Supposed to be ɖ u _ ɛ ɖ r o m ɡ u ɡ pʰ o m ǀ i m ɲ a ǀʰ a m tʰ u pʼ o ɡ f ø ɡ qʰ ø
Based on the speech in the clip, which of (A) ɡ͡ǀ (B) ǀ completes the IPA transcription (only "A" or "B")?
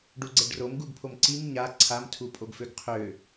A